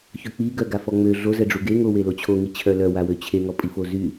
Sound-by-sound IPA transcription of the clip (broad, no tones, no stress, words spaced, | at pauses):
çøk͡piɡœ ɡafɔŋ͡mø ɮozɛɖ͡ʐu ɡeŋowelo t͡ɕʰoŋit͡ɕʰœ lœwawø t͡ɕʰeŋɔ pʼifozy